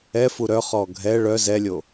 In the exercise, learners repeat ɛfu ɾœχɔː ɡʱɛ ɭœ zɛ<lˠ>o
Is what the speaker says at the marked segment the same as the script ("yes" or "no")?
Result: no